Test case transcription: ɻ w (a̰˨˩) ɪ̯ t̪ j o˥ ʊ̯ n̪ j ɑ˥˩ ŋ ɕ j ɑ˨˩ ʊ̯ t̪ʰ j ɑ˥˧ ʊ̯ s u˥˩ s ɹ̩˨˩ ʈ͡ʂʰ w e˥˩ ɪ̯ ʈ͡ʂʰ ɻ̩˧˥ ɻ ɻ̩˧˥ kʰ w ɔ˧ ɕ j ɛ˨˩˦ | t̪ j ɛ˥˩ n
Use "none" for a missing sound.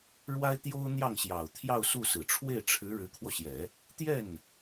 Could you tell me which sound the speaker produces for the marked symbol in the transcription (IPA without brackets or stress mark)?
a˥